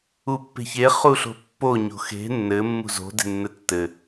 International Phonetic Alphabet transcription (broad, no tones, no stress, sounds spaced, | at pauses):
u pː e̤ ç e χ u ɬ o̤ pː o ɲ o̤ x e̤ nː ɘ mː ṳ z o̤ d e̤ nː ɘ tː ɘ